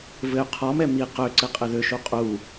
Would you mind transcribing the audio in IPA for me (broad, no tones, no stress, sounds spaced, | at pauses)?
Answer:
v ɘ y̯ qʰ ɔ m ɛ m i q ø ǀ ɘ qʼ ɘ ð ø ʃ u qʼ u